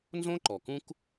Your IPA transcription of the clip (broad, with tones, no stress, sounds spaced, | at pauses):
n z õ˥ ǃ ɔ˩ k ũ˥ k